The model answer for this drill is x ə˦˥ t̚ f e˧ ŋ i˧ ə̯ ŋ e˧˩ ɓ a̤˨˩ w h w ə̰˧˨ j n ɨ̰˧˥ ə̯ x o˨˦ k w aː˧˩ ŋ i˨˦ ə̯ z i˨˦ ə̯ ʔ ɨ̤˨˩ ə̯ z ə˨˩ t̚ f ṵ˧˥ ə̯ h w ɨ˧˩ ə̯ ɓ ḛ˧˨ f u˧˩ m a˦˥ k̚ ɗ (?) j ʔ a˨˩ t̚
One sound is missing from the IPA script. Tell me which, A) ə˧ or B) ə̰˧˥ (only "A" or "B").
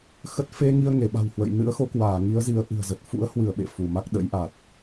B